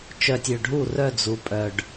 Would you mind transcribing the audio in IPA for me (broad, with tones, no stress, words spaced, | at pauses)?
t͡ʃœ˨tʲø˨ɖʱu˦˨ rœ˦˨d͡zu˨pʼœ˨ɖ